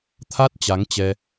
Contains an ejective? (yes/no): no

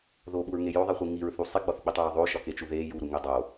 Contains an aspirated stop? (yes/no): no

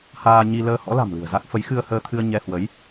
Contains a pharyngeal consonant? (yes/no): no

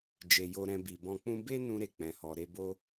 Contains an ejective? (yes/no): no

